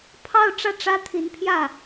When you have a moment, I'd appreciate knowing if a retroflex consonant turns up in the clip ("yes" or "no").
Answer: yes